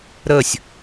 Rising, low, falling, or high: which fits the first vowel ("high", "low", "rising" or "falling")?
falling